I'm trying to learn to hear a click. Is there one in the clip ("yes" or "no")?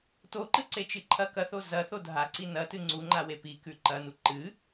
yes